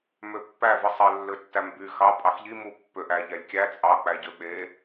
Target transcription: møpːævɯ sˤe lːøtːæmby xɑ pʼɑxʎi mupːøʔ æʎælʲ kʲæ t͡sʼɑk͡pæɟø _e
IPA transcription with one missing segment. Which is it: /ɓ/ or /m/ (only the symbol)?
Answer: ɓ